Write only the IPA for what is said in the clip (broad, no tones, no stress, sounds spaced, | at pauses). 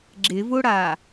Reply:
ɡ͡ǁ ɪ v ʊ ɽ a